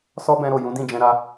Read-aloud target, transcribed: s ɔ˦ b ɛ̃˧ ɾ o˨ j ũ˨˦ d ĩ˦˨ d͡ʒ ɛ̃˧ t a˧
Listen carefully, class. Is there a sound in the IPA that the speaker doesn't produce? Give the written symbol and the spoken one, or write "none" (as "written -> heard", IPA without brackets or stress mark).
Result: t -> ɾ